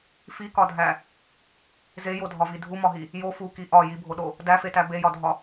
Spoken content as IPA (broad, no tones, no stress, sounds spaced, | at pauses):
f i k ɒ dʱ æ | z e j o dʱ ɒ v i dʱ u m ɒ ɦ i | j o f u k i ʔ ɒ j i bʱ o ɗ o | d æ f e t æ b e j ɒ dʱ ɒ